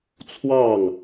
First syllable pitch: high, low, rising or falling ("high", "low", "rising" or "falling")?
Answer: falling